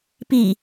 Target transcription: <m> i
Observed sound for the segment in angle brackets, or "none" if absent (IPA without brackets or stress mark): p